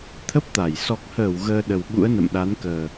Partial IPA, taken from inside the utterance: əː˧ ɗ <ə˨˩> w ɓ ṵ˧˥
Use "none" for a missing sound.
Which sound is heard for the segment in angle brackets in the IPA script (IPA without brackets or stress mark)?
ə˨˩